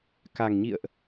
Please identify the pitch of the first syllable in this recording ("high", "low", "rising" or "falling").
low